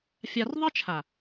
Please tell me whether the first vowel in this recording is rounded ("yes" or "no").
no